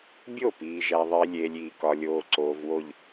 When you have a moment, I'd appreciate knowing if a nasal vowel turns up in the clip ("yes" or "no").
no